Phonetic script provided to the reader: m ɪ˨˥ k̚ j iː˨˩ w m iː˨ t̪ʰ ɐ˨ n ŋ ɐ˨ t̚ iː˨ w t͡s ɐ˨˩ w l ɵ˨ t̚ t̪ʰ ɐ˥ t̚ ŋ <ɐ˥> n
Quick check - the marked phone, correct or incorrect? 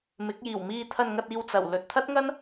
correct